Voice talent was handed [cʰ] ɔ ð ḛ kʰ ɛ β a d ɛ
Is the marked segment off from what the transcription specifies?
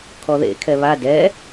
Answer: yes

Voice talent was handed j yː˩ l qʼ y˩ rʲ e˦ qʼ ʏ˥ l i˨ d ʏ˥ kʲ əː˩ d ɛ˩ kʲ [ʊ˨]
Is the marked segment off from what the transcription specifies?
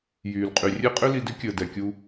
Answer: yes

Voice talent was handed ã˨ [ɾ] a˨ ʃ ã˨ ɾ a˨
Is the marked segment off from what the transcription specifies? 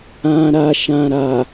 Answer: no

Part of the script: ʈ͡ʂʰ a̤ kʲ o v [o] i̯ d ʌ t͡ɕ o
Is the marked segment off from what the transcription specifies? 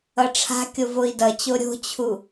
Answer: no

